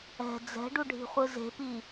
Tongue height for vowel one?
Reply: mid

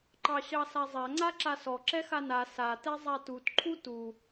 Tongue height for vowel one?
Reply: low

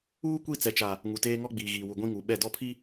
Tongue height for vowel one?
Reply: high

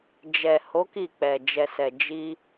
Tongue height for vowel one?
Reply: mid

